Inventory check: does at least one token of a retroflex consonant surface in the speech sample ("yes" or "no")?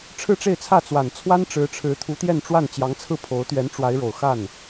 yes